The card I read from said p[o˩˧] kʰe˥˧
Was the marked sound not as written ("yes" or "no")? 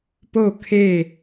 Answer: yes